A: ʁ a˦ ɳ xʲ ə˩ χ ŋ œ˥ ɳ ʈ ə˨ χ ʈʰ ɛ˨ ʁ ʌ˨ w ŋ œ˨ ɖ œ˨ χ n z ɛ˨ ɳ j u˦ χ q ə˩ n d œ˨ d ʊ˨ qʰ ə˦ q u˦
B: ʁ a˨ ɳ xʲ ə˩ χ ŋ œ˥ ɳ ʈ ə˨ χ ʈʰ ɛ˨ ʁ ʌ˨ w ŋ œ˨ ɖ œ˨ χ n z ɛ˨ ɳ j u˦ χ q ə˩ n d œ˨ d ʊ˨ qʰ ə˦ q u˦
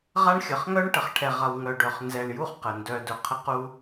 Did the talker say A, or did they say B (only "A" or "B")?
A